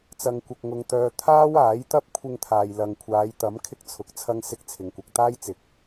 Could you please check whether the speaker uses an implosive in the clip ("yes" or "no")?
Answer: no